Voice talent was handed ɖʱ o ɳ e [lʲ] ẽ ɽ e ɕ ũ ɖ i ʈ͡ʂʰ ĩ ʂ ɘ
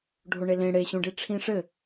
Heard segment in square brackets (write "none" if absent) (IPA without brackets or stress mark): l